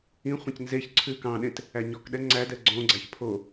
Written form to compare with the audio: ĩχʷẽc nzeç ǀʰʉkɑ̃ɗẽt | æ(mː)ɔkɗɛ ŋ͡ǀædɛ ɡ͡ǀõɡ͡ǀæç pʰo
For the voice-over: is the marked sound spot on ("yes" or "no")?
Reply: no